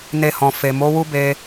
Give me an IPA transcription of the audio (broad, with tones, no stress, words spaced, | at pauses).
ne˧hɔ̃˨ fe˨ mo˨˦ wu˦be˧